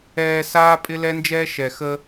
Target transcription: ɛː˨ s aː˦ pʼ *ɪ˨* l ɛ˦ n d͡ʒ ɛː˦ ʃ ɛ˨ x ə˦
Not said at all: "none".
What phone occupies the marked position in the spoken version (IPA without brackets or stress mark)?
ɪ˦